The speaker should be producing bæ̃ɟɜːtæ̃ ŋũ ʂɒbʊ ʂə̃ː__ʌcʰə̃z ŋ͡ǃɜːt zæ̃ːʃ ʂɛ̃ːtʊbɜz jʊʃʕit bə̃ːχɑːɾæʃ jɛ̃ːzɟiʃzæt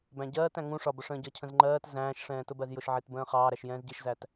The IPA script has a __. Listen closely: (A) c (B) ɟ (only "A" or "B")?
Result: B